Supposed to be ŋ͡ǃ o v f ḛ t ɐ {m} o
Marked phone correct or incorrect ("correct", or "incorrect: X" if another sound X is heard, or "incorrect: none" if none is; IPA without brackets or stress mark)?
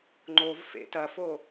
incorrect: f